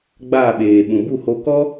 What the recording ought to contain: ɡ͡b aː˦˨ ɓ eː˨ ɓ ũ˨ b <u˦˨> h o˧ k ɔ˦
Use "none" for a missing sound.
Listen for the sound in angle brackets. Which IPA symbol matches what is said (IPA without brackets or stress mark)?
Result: u˦˨